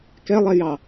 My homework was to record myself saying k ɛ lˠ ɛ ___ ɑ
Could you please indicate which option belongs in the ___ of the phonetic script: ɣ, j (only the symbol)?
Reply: j